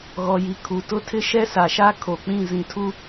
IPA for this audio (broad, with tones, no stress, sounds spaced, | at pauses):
ɣ ɔ˨ j i˨ kʰ u˨ t ʊ˦ tʰ ɪ˦ ʃ ɛ˦ s a˨ ʃ a˦ kʰ o˨ k͡p ĩ˦˨ z ĩ˨ tʰ u˦